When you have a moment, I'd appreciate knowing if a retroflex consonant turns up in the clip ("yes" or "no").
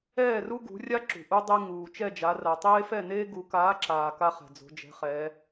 no